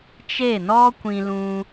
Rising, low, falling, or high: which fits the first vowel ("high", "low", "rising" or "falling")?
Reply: falling